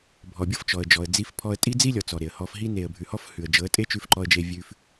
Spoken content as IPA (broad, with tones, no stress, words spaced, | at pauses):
bʱɔ˨bʲɤ˦˨f t͡ʃɔ˨ə̯ d͡ʒɔ˨ə̯ d͡zi˧fpʰɔ˧ə̯tʼi˦ d͡zi˦lʲɔ˨ t͡sɔ˨ɾe˨ə̯hɔ˧fɦi˦ ne˨ə̯bʱʉ˨hɔ˧f hʉ˨ə̯d͡ʒɤ˨˦ə̯ tʼe˦t͡ʃʉ˧fǃɔ˧ə̯d͡ʒe˧ vʲʉ˧f